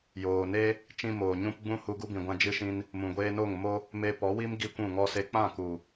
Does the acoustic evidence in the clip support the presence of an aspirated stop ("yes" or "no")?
no